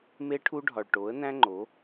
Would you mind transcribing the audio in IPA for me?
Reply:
m e˦ ʈʰ u˦ ɖʱ ɒ˨ ɭ ʈ o˨˦ ə̯ n æ̃˦ ŋ͡ǃ o˨˦

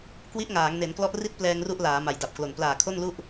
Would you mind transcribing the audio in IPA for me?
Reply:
k w i˦˥ ʔ ŋ aː˩˦ ŋ n e˩˦ n k l ɔ˦˥ ʔ r i˥˩ t̚ p l ɛː˧ ŋ r u˦˥ ʔ l aː˩˦ m a˨˩ j d a˨˩ p̚ k l o˨˩ n p l aː˨˩ kʰ o˥˩ n l u˥˩ ʔ

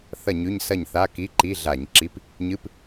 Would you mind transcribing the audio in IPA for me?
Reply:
θ ɐ˥˨ ɲ ʉ˧˥˧ ɲ s ɐ˥˨ ɲ θ a˧˥˧ k i˧˥˧ ǃ i˧˥˧ ɮ a˧˩˧ ɲ ǁ i˧˥˧ p | ɲ ɨ˧˥˧ p

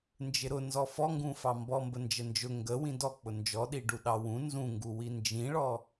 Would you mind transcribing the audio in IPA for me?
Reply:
n d͡ʒ ɪ ɾ ʊ n z ɔ f ɔ ŋ ɡ ũ f ɑ m b ɔ m b ə n d͡ʒ ə n d͡ʒ ʊ ŋ ɡ ə w ĩ d ɔ k͡p ʊ n d͡ʒ ɔ ɗ i ɖ u ɗ ɑ w ũ n z ũ ŋ ɡ u w i n d͡ʒ ĩ ɭ ɔ

